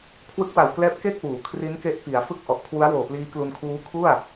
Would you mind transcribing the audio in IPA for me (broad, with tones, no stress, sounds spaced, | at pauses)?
kʰ w ɯ˦˥ k̚ w a˨˩ w k l ɛː˦˥ p̚ k e˥˩ k̚ w uː˩˦ kʰ r i˦˥ n k e˦˥ ʔ p i˩˦ a̯ f ɯ˥˩ k̚ ʔ ɔ˨˩ ʔ kʰ w u˦˥ a̯ w oː˨˩ p l iː˦˥ k l u˧ n kʰ uː˦˥ kʰ u˥˩ a̯